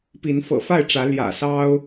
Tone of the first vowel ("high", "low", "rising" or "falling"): rising